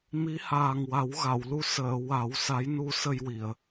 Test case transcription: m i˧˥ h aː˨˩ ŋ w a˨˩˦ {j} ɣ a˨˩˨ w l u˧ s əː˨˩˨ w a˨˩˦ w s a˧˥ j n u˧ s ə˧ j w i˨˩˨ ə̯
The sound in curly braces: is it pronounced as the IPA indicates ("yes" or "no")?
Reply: no